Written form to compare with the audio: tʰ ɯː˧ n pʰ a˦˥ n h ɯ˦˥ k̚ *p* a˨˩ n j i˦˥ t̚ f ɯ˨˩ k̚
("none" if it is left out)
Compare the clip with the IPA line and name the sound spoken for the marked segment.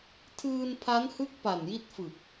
p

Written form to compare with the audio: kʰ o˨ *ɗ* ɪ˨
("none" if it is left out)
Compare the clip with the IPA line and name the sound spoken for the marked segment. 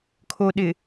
ɗ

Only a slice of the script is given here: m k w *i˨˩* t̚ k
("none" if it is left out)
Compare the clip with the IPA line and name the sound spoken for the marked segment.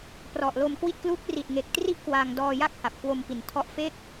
i˥˩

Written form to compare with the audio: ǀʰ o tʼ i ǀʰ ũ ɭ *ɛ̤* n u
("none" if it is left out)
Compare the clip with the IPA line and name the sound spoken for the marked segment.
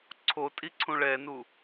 ɛ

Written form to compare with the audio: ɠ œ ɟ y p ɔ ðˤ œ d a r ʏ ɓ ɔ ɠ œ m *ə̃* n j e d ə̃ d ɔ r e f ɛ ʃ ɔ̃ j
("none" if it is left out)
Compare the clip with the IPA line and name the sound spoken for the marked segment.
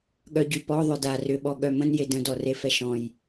ə̃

